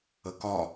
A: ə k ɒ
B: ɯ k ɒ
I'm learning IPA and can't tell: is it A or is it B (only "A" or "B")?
A